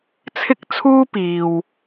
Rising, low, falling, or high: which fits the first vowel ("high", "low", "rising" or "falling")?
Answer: high